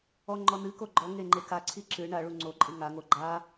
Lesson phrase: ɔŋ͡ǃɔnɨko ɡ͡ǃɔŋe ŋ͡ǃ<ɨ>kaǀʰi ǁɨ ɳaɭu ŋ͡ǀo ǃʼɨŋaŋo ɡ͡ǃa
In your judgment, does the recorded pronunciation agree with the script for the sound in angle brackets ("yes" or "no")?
no